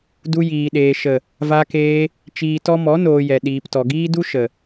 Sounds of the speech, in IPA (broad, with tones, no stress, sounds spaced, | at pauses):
d u˧ j iː˨ ɗ eː˨ ʃ ə˨ | v aː˧ k eː˧ | t͡ʃ iː˨ t ɔ˧ m ɔ˨˦ n oː˧ j ɛ˨ ɗ iː˨ p t ɔ˨ ɡ iː˦ d u˦ ʃ ə˨